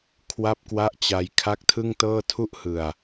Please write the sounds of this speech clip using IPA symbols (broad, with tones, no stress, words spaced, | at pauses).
kʰwa˥˩p̚kwa˥˩ʔt͡ɕa˧j kʰa˦˥k̚tʰɯ˥˩ŋtɤː˥˩tʰu˥˩ʔ hɯ˨˩a̯